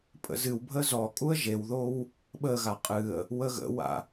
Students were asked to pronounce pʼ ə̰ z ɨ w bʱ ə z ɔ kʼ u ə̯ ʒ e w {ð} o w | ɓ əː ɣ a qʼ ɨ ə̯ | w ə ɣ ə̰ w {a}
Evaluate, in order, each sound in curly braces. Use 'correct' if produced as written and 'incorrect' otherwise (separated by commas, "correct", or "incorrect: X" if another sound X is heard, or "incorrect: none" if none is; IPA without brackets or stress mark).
correct, incorrect: a̰